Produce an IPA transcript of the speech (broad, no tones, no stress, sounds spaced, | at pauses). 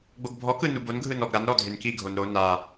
ɡ͡b o ɡ bʱ ɔ k ɯ n u b o n ɡʱ ɯ n ɔ ɡ ɾ a n ɾ ɔ dʱ e n k i ɡʱ o n ɾ o n a